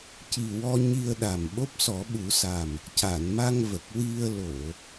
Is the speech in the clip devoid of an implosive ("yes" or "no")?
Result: no